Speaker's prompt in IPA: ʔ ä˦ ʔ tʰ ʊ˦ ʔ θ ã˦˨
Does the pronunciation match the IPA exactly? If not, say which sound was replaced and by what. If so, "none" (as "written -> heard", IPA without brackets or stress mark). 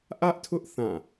none